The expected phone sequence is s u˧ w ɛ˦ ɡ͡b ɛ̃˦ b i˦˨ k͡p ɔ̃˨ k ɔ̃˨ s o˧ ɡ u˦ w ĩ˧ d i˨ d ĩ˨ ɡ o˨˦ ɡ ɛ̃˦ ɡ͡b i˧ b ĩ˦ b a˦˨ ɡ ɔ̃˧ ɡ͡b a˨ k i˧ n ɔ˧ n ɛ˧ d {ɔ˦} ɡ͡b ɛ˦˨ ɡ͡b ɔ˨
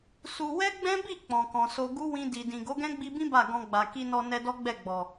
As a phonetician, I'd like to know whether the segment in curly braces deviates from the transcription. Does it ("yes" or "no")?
no